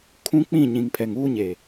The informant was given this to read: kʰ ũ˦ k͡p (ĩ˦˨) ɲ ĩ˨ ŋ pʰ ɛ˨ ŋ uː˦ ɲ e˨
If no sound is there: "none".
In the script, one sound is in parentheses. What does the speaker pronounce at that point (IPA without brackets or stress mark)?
ĩ˦˨